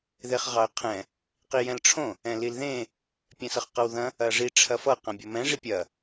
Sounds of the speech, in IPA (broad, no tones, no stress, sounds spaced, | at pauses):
ð e χ ʁ ɑ ə̯ qʰ ɛ̃ | q i j ɛ̃ l ʈ͡ʂʰ õ | ɛ̃ l i l ð ẽ | pʲ ɛ̃ s ʌ χ q ʌ w ð ɐ̃ | ɐ ʐ i ʈ͡ʂʰ ɐ f ʌ q ɐ̃ bʲ ʌ m ɛ̃ ʐ i pʲ ɐ